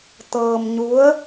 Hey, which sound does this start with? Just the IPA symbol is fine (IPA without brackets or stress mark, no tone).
t̪